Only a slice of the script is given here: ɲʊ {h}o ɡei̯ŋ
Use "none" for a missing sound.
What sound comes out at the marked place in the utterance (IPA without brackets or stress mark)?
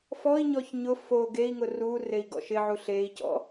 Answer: f